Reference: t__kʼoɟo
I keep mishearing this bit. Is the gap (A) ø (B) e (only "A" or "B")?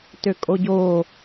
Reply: A